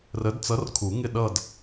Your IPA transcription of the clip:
rə˨˥dt͡sʌ˨˥rkʰu˨˩˦ŋɪ˥˩ ɗʌ˥˧d

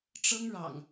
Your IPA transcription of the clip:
ʈ͡ʂɤ˦ŋɻɑ̰˨˩ŋ

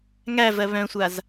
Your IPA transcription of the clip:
ŋævɜ βœ̃sʷaz

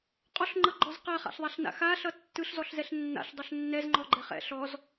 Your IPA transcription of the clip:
qʼɔɬŋ͡ǃʌɡ͡ǃɔz qaχa̰ɬðˤaɬna̰ xaɬʌ tːɯɬzɔɬzɛɬ nːa̰ɬdˤʌɬ nːɛzŋ͡ǃɔɡ͡ǃɛ χɛ̰ ɬɔz

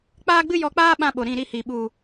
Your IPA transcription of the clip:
k͡paː˦ɡ͡bɨ˦jɔ˧k͡paː˦ ɓã˦ ɓo˨ ɾĩ˦˨ɾi˦hi˨ ɓu˨

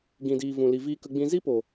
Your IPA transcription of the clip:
ɡĩ˨diː˨ vũ˨li˨ viː˧kə˧ɡ͡bĩ˧ zi˦po˨

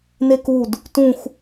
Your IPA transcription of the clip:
nekud | tũx

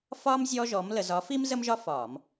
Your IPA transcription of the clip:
fɒː˥m zʲɔ˥ʒɔ˧˥m lə˧zɒ˧˥fiː˥m zə˥mʒɒ˥ fɒː˧˩˧m

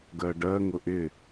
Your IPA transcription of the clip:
ɡɜɖɜ ŋʊʔɪ

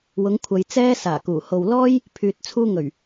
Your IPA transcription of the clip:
wʊ˨˧ŋkʷʰɐ˨j t͡sɛː˥saː˨˩kuː˨˩ ho˨wlɔː˥j | pʰyː˨t̚t͡sʰuː˧ŋɵ˨˩ɥ

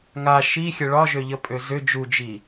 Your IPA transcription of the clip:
ŋa ʃixʲə ɭɒʒøʎəpʼø zʏ d͡ʒud͡ʒi

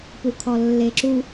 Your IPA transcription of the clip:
pukʰɔlːeǁu

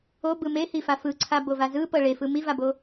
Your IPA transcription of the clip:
obɯ mehifa fɯǀʰabova zɯpɤ ɭefɯ mivabo

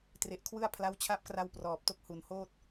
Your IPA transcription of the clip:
tre˨˩ʔkʰwɯ˥˩a̯ pʰla˦˥wt͡ɕʰa˦˥p̚kra˧w prɔː˨˩p̚to˦˥k̚hu˨˩n hoː˥˩t̚

